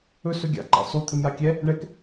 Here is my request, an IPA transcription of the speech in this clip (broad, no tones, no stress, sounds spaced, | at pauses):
ɵ s ɵ ɡʲ a̰ ǃ a̰ sˤ u t̪ʰ ɪ m j a kʲ ɛ | ɳ ɛ k